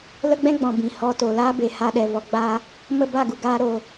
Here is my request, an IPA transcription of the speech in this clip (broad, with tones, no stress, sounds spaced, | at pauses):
l ə˦ ɡ͡b ɛ̃˦ ɡ͡b ɔ̃˨ b ĩ˨ h ɔ˧ t o˨ l aː˦ b e˨ h a˧ ɗ ɛ˨ v ɔ˨ ɡ͡b a˧ | m ə˦˨ b a˦˨ ɡ u˨ ɡ aː˦ ɾ o˧